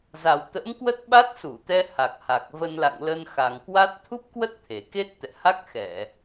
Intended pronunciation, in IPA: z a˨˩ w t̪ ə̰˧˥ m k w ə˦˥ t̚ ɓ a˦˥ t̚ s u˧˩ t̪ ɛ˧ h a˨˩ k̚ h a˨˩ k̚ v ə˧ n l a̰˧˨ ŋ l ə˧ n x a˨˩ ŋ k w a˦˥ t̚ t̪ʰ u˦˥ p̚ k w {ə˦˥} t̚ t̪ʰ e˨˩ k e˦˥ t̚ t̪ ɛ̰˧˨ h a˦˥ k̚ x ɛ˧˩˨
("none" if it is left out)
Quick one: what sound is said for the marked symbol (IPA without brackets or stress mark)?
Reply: ə˦˥